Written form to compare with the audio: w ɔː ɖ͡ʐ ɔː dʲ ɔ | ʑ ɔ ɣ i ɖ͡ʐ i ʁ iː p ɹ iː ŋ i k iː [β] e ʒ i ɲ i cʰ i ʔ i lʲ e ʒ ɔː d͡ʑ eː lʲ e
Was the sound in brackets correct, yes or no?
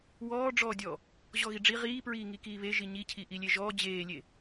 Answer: yes